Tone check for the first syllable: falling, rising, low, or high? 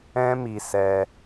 high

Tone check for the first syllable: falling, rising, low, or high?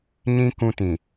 high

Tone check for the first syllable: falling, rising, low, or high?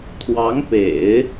rising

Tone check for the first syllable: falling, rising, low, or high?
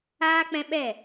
high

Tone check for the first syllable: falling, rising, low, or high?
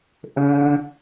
high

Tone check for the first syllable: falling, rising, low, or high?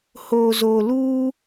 low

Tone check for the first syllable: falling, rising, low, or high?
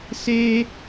high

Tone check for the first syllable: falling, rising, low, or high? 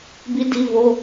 rising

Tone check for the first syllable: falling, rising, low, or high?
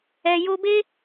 low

